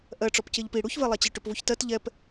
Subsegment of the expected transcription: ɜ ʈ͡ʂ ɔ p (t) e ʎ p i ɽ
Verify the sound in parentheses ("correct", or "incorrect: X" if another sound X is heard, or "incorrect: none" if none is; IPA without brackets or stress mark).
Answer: incorrect: c